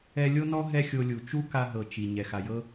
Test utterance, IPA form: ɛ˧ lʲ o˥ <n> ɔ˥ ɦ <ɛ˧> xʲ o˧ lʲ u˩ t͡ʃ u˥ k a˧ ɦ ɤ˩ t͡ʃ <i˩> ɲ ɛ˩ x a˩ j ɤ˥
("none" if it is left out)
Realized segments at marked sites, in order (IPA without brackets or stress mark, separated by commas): n, ɛ˥, i˩